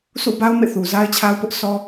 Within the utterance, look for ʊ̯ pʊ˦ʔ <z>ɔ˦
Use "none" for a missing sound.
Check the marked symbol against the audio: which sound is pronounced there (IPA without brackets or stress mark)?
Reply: s